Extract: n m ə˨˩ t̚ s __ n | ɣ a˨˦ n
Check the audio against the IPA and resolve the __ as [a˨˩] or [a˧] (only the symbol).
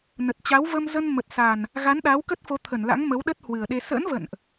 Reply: a˨˩